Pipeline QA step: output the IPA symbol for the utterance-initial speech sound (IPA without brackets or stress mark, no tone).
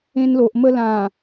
ẽ